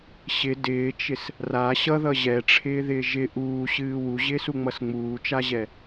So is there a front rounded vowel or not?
no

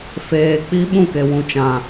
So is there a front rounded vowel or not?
no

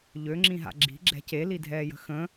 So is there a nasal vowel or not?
yes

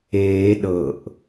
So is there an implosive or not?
yes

